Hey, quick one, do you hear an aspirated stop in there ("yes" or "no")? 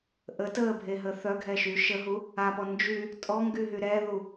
no